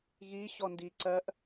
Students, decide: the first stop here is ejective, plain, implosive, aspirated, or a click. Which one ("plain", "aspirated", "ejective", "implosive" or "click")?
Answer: plain